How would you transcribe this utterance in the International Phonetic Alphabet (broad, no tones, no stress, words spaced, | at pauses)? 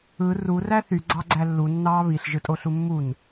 ɯ ru ræθy ɡ͡ǀɑɡ͡ǀælːu nːɑːβiɬ ʒɯtʼoɬumːun